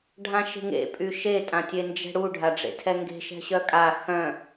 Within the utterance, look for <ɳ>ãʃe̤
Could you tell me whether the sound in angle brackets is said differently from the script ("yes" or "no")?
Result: yes